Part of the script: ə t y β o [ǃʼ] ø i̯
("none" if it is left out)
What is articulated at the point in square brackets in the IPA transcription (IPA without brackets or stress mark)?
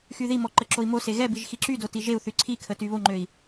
ŋ͡ǃ